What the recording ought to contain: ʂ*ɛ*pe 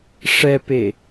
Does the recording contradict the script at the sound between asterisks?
no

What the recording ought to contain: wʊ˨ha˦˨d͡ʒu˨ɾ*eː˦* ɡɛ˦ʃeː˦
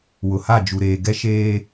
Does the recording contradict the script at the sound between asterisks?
yes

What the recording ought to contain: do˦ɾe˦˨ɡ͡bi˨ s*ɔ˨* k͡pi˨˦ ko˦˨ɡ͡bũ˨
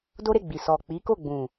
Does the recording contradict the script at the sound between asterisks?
no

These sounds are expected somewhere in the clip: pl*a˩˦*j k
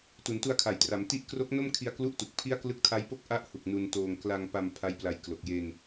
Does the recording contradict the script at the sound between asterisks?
yes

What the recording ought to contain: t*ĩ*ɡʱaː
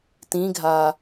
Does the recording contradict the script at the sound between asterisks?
no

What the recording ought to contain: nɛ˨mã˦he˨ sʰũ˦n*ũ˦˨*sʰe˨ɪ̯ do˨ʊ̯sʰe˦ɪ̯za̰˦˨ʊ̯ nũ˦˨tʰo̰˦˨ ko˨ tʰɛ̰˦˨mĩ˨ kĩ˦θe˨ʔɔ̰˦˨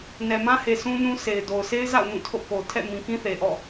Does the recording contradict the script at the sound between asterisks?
yes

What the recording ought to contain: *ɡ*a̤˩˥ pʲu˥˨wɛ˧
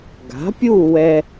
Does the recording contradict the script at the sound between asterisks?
no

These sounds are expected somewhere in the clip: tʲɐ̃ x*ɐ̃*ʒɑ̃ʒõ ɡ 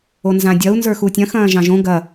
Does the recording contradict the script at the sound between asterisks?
yes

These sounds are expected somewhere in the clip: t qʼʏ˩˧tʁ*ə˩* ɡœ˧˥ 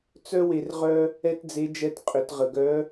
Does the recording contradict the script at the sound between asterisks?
no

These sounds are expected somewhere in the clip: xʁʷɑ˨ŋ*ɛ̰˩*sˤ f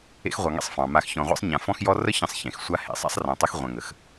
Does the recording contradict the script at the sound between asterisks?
yes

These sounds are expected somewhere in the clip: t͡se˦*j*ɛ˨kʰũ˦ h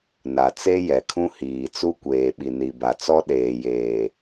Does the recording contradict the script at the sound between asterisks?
no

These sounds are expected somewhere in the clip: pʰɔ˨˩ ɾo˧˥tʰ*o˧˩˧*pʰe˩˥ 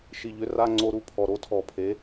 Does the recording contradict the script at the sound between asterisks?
yes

